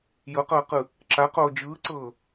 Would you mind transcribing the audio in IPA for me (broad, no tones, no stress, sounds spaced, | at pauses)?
j ɤ q ɤː q ɯ | ǁ a q oː d͡ʒ ɯː ǀ ɤː